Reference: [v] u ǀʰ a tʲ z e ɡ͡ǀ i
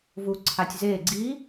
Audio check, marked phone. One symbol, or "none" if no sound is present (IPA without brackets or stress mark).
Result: v